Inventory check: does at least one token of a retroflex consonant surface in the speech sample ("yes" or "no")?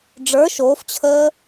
yes